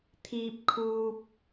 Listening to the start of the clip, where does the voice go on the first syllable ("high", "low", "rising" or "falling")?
high